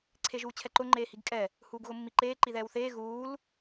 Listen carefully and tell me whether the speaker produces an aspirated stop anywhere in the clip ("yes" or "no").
yes